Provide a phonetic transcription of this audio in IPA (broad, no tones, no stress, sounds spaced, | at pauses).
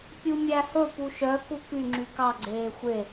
pʲ u mʲ æ h ɵ p u ʃ œ k u k y ŋ͡ǁ y k ɑ ɡ͡ǀ eː xʷ e